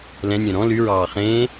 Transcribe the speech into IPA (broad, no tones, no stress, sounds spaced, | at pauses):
l ɛ̃ nʲ œ̃ ɾ ɔ̃ l y ɹ ɑː χ ẽː